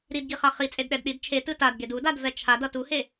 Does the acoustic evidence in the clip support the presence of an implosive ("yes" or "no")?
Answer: yes